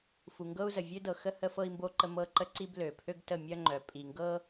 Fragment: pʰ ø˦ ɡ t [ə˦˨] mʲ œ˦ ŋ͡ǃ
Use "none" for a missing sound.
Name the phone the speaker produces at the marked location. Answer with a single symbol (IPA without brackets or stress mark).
ə˦˨